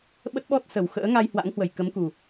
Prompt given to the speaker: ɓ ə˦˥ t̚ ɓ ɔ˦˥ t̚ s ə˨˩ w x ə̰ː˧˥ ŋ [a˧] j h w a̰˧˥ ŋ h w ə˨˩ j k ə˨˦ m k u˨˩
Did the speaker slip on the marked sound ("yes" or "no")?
no